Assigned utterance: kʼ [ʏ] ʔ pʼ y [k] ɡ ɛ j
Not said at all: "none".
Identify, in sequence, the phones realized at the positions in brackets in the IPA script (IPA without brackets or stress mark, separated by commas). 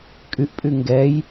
y, ŋ